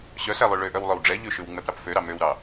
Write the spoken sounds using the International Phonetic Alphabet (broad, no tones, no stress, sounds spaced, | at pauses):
ɕ œ s æ lˠ ʉ ɭ ø ʔ œ w lˠ œ w ɖ͡ʐ ɛ ʎ ʉ ʃ ʉ w ŋ͡m ɛ p ɾ ɑ p f ø ɾ ɑ m ø w ɾ ɑ